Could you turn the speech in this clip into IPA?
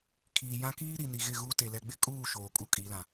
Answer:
kʰ iː˨ j ã˦ k iː˦ ɾ i˨ n i˨ ɣ ɪ˦˨ ɣ u˦ t e˨ l ɛ˨ ɡ͡b ɪ˦ kʼ uː˦˨ ʃ oː˨ kʼ u˦ kʼ i˨˦ l ã˨

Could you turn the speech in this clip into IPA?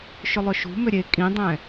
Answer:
ʃ ʏ lˠ ʏ ʃ ṳ m ʏ ɾʲ e kʼ ĩ dˤ ɛ̃

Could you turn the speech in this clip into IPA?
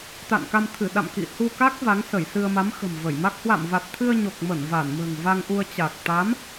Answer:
t̪ a̰˧˨ n k a˧ m t̪ʰ ɨ˧˩ ɗ a̰˧˨ m k ḭ˧˨ h u˧ k a˦˥ k̚ v a˨˦ ŋ s ə˧˩ j s ɨ˧ ə̯ m a˨˦ m x ə̤˨˩ m v ə˧˩ j m a˦˥ k̚ h w a̰˧˨ m v a˨˩ t̚ t̪ʰ ɨ˧ ə̯ ɲ o˨˩ k̚ m ə˧˩ n v a˧˩ n m ə̤ː˨˩ ŋ v a˧ ŋ ʔ u˧ ə̯ t͡ɕ a˨˩ k̚ t̪ a˨˦ m

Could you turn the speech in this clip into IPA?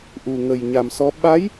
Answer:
ʔ u˨˩ ŋ ə˨˩ j ɲ a˨˩ m s ɔ˧˥ ɓ a˧˥ j

